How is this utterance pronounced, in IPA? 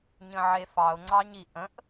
ɲ ə̃ ʕ e f ɑ ʊ̯ ŋ͡ǀ ɑ ɲ i ʔ ə̃ ʔ

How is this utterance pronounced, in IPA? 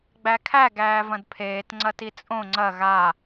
ɡ͡b æ kʰ æ ɡ æː v ɐ̃ d pʰ eː t ŋ͡ǀ ɐ t i t͡sʼ õ ŋ͡ǀ ɐ ɣ a

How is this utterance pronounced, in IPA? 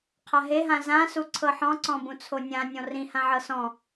qʰ a ɦ e ɦ ã z ã s u ǀʰ ɤ ħ ɔ̃ ǀ ɔ̃ b ũ t͡sʰ o nʲ ã nʲ ɔ̃ r ĩ h ã ʕ ɤ s ɔ̃

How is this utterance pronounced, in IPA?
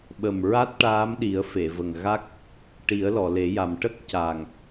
ɓ ə˨˩ m ɹ a˦˥ t̚ ʈ aː˧˥ m ɗ i˨˩˦ ə̯ f e˨˩˨ v ə˨˩ ŋ ɣ a˦˥ k̚ | ʈ i˨˩˦ ə̯ l ɔ˨˩˨ l e˨˩˦ j a˨˩ m ʈ ə˦˥ k̚ c a˨˩ ŋ

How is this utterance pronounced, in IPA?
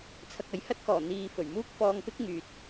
t͡sʰ ɐ˧ k̚ ɐ˨˥ j h ɐ˥ t̚ k ɔː˨˩ n̪ iː˨ f ɵ˨˩ ɥ m uː˥ k̚ f ɔː˧ ŋ p ɪ˥ k̚ ŋ yː˨ t̚

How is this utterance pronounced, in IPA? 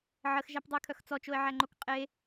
ʕ ə x ʒ æ p dˤ ə ɪ̯ kʰ œ x t͡s ɔ t͡ʃ o ɪ̯ ʕ æ ŋ͡ǃ o k qʼ e

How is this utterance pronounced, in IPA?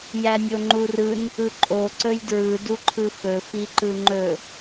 j æ nʲ o ŋ͡ǃ u r ɯ n | ɯ ǃʼ o ǀ ɵ j d ɹ ɯ d u ǃʰ ɯ f ɵ f i ǃ ɯ ŋ͡ǃ ɵ

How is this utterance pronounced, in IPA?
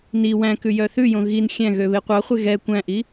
n i w æ̃ k ʉ j œ θ ʉ j õ ɣ i n xʲ æ̃ ɣ ø β e qʷ ɑ χʷ e ɣ ɛ kʷ æ̃ ʔ i

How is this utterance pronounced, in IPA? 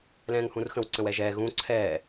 l ɛ̃ː ŋ h ũ r x ə̃ w ǀ ə̃ w ɛ ʒ ɛː ɣ ũ ǀʰ ɛː

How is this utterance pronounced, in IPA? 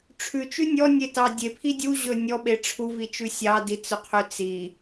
ʈ͡ʂʰ ʉ t͡ʃ ʉ nʲ ɔ nʲ e t ɑ dʲ e pʰ i dʲ u ʑ ɵ nʲ ɔ ɓ e ʈ͡ʂʰ u v i t͡ʃ ʉ sʲ ɑ d i t͡s ɵ qʰ ø t͡s i

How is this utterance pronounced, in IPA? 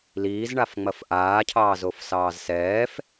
l iː z ɳ a f ŋ͡m ɐ f ʔ aː cʰ ɑː z o f s ɑː z s ɛː f

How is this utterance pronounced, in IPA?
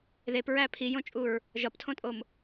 ð e p ɹ æ pʰ i j õ t͡ʃʼ u ɹ | ʒ ɒ p tʰ õ tʼ o m

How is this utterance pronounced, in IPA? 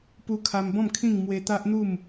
p u˧ kʰ a˧ m b ɔ̃˥˧ m kʰ ĩ˥˧ ŋ m w e˧ t̪ a˦ ʔ n̪ u˥˧ m

